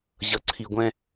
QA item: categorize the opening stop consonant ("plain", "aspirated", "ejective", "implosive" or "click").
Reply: click